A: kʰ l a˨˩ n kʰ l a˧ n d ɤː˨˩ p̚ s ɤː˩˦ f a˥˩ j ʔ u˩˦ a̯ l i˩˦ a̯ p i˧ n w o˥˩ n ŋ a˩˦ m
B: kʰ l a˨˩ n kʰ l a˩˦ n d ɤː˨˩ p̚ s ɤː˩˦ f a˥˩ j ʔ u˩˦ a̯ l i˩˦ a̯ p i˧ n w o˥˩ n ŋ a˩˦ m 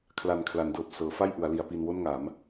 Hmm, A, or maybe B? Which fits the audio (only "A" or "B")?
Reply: B